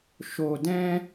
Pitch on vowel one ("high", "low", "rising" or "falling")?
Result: low